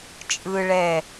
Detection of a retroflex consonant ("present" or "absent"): present